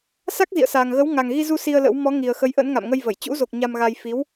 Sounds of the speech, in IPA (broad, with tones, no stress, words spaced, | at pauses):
sa˦˥k̚zḭ˧˨ə̯saː˨˩ŋ ɣə˨˦w ŋa˨˩ŋɣi˧zu˧ si˧ə̯lə̰˧˥w mɔ˨˦ŋi˨˩ə̯xə˨˦jʔə̰˧˥n ŋa̰˧˨mŋə˧jvə˧˩j t͡ɕṵ˧˥zo˨˩k̚ ɲa˧mɣa˧j fi˨˦w